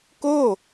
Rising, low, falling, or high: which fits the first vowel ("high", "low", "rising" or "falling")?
falling